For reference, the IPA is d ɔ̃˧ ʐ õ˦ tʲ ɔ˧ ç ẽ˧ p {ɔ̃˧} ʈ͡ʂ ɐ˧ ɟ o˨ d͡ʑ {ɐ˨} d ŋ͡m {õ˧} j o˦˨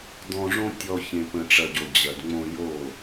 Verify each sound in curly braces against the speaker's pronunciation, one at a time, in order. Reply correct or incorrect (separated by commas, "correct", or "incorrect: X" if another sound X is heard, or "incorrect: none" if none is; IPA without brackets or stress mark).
incorrect: ə̃˧, correct, correct